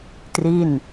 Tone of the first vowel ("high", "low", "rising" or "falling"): falling